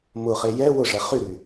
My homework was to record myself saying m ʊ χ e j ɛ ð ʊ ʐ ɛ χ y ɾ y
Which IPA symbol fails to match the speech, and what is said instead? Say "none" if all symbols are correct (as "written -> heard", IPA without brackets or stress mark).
ð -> w